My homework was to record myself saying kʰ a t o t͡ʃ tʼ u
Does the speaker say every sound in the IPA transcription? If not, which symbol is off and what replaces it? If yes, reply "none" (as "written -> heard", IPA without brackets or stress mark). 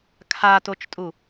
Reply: none